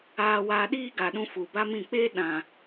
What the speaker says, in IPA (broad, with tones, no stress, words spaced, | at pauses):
aː˧waː˧ɗiː˦ɡa˨ ɗũ˧fu˨ba˦mĩ˦˨ k͡peː˦ɗã˨